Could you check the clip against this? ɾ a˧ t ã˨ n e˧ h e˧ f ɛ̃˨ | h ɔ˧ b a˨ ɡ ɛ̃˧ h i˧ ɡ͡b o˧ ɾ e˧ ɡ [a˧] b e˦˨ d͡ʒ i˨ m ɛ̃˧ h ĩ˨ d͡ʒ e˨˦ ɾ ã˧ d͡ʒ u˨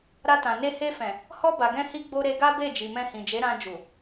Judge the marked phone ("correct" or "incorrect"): incorrect